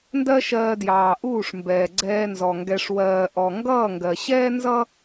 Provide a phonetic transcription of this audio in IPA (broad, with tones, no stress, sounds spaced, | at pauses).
n d ɜ˦ ʃ ɜː˧ d j ɑː˨ ʔ uː˦˨ ʂ m b ɛː˨ ɡ͡ǀ ɛː˧ n z ɔ˨ ŋ ɡ ɛ˨ ʂ w ɜː˨ ʔ ɔ˨ ŋ ɡ ʌː˦˨ ŋ ɡ ɜ˨ ɕ ɛː˦ n z ʌ˦